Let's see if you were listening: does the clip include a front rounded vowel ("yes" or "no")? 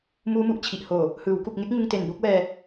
no